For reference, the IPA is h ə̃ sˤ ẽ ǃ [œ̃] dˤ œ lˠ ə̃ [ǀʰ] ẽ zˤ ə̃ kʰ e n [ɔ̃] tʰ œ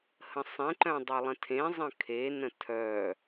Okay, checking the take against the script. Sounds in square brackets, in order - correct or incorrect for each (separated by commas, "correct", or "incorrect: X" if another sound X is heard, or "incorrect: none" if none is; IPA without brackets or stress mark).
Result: correct, incorrect: tʰ, incorrect: ə̃